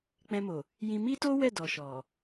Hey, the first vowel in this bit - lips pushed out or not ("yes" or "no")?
no